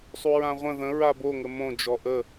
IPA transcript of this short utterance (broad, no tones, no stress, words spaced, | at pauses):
sˤuɹãʁʷə̃ ðə̃ ɹabo ŋəmõ d͡ʒɔʔə